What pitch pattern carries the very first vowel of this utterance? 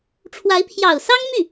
rising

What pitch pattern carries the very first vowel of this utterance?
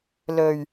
low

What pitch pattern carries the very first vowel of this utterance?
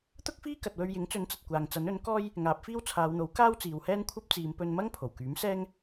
high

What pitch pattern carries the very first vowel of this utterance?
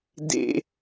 low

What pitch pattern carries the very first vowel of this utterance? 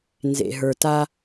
low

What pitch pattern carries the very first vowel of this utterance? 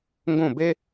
falling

